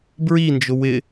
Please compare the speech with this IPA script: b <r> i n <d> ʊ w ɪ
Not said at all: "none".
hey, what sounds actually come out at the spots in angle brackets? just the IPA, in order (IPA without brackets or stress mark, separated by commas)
ɹ, d͡ʒ